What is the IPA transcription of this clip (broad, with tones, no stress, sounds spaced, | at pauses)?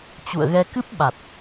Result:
t͡ɕ ṵ˧˨ ə̯ ɣ ɛ˧ k ɨ˦˥ p̚ ɓ a˨˩ t̚